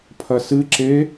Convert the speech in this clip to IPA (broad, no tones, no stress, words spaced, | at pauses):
pʰɐsɨǁe